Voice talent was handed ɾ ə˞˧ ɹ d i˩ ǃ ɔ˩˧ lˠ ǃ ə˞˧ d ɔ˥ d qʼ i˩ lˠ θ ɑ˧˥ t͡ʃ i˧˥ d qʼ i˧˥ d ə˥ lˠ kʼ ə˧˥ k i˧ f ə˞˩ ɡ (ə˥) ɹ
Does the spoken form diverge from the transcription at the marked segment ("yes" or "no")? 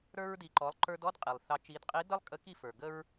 no